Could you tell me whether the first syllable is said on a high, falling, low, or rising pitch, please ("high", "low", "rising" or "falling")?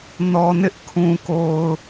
low